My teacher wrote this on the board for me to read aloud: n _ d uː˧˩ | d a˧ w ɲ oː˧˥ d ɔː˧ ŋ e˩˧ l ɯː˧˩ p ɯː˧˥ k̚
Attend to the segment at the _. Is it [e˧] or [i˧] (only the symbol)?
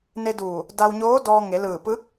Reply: e˧